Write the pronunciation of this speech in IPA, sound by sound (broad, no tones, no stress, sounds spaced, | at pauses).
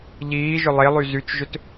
ʎ iː ʒ ʏ lˠ e lˠ y z y t͡ʃ ʒ ʏ t